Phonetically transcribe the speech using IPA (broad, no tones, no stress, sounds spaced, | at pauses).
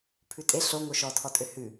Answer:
pʰ ʉ tʼ e ɬ o ŋ o ʃ ɔ tʰ ɔ tʼ ø h ʉ